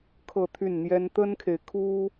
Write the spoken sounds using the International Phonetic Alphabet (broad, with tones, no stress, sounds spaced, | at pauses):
kʰ ɤ˥˧ t̪ʰ y˥˩ n n̪ j ɛ˥ n t̪ ə˥ n kʰ e˨ ɪ̯ kʰ u˥